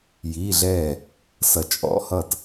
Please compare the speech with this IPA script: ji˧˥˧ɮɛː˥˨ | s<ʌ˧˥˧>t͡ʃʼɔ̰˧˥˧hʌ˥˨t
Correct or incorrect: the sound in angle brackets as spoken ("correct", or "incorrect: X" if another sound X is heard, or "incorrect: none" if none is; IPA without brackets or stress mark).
incorrect: ʌ˧˩